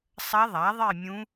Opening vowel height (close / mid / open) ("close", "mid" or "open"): open